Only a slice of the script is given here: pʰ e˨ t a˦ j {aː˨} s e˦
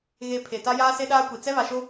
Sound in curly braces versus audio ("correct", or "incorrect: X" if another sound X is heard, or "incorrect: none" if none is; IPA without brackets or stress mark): incorrect: aː˦